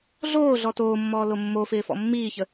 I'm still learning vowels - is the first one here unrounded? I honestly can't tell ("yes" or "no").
no